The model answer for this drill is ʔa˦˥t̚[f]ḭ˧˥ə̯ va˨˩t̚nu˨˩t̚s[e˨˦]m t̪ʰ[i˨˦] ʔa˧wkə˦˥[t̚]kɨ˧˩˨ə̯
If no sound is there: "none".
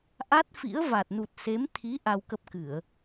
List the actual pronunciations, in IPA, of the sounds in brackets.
f, e˨˦, i˨˦, p̚

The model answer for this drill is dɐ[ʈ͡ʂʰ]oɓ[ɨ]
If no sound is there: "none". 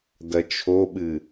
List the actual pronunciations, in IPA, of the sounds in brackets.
t͡ʃʰ, ɨ

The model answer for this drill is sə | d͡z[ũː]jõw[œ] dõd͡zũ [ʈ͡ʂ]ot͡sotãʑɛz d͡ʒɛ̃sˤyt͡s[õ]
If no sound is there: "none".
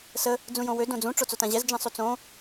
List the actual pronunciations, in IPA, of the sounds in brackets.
ũ, ø, ʈ͡ʂ, õ

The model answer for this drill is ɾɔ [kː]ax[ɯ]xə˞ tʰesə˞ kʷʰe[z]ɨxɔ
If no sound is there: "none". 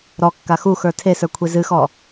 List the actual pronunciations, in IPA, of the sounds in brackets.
kː, u, z

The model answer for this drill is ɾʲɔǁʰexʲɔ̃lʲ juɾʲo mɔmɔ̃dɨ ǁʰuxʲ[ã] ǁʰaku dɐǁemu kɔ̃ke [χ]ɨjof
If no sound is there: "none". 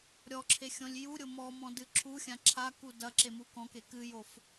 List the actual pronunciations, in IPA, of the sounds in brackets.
ã, k

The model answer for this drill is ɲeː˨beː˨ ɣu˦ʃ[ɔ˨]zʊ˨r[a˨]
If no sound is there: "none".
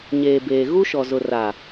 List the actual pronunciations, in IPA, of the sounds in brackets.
ɔ˨, a˨

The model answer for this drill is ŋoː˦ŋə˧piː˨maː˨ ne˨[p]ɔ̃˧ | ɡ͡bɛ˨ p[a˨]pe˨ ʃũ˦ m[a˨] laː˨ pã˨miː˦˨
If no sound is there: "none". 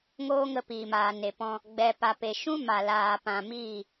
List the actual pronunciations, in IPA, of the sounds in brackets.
p, a˨, a˨

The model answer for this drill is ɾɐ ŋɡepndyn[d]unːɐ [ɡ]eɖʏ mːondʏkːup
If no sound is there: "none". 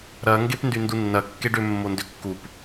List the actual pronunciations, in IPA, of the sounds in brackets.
d, kː

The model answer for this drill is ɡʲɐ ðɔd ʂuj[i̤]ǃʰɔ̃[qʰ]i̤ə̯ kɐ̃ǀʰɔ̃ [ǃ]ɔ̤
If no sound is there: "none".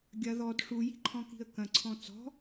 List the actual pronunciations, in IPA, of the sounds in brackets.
i̤, k, t͡s

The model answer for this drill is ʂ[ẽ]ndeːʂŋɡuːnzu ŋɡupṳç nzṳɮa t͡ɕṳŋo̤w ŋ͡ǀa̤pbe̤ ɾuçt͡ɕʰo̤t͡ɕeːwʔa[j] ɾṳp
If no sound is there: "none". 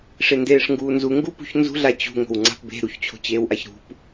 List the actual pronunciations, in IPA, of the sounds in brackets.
e, ç

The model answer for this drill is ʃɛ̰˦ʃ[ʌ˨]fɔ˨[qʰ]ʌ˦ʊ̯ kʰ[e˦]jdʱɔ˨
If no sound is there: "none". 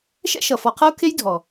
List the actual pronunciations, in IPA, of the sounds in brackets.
ʌ˨, qʰ, e˦

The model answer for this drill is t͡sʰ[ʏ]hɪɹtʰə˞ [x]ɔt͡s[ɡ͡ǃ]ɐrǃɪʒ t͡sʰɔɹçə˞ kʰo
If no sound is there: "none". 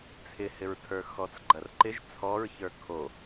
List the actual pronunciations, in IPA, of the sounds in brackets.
ɪ, x, ɡ͡ǃ

